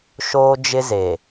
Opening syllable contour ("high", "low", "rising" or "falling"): high